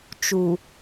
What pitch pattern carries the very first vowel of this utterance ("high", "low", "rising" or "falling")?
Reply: low